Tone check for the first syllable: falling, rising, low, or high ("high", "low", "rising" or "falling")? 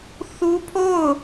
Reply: high